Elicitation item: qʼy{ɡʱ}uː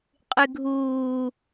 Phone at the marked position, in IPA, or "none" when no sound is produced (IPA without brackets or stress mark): ɡʱ